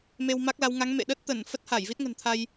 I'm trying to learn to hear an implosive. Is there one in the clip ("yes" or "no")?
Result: yes